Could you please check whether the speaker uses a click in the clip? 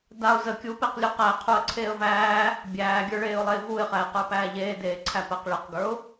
yes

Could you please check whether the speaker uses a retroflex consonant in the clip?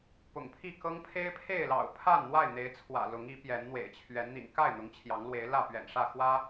yes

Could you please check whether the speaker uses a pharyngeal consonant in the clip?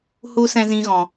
no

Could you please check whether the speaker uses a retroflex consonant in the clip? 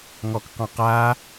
no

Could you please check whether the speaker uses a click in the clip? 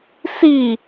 no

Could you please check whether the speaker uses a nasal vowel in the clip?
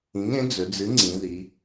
yes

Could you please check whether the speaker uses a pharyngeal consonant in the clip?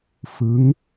no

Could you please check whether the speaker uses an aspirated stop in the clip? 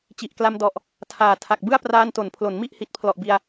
yes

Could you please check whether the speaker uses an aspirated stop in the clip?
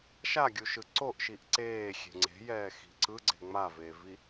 no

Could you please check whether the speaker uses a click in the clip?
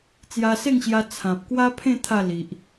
no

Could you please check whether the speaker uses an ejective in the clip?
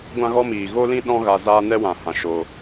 no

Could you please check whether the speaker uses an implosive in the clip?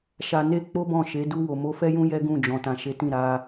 no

